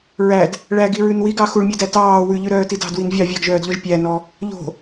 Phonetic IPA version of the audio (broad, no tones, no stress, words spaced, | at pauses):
ɹæd | ɭæɡiɹʉn wiɡɑ xuɭmʲɛdæ tɑː wʉʎʉɾœːti dɑ̤dwin vʲɑ vʲɑɡʒœːdʎɔʒ pʲænɔ | ʎo̤